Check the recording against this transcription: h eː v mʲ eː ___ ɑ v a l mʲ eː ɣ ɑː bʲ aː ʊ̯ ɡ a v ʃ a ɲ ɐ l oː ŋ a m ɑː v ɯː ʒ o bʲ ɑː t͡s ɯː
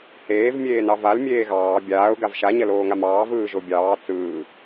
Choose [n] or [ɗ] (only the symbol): n